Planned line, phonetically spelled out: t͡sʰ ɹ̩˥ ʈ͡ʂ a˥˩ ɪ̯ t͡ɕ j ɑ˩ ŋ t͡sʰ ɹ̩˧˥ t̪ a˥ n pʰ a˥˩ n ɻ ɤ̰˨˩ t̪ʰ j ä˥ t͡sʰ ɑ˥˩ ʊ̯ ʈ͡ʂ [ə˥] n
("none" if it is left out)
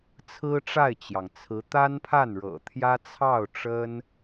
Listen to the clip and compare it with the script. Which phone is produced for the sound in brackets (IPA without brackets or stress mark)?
ə˥